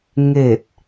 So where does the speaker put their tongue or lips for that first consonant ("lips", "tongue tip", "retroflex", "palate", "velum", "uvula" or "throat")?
velum